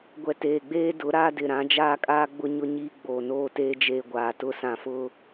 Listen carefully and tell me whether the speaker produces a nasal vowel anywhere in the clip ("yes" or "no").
yes